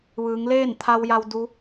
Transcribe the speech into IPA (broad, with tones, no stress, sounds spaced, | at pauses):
ʋ ɯː˩˧ ŋ l eː˥˨ n t̪ʰ a˧ w j a˧ w d u˧˥